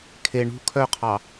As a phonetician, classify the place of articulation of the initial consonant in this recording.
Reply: velar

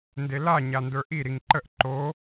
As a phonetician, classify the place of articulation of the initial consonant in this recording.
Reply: alveolar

